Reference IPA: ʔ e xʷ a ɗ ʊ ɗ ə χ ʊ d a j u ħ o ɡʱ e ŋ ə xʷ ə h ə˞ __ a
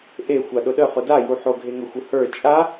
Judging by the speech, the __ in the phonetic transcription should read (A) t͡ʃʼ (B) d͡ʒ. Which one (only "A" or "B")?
A